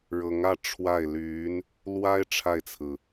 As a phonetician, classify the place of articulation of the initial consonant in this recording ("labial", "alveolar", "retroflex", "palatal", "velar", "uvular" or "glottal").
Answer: retroflex